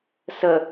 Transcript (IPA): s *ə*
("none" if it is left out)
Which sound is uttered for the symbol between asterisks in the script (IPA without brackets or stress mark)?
ə